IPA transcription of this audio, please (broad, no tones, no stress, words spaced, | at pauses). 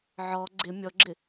ʕɔ ɡ͡ǀɪ mʲɔɡ͡ǁɪ